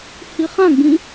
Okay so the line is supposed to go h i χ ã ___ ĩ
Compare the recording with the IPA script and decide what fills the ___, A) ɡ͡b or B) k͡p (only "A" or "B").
A